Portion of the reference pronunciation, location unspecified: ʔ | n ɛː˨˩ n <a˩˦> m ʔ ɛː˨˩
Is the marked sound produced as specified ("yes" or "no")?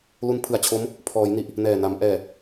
yes